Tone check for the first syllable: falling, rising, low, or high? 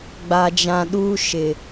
low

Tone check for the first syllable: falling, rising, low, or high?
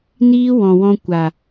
high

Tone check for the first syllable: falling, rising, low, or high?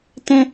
high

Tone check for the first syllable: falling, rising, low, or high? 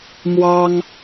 high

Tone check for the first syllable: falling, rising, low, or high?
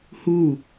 falling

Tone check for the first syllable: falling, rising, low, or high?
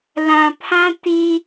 low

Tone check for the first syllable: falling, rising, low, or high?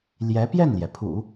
rising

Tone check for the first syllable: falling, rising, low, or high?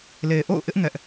low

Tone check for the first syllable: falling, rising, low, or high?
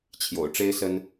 low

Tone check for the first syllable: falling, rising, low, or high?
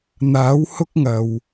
rising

